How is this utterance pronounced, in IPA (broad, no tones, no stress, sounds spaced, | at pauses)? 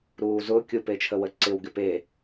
ɾ uː z ʊ kʲ ʊ p e t͡ʃʰ ə w ə ǀ ɪ w ɡ ɪ p e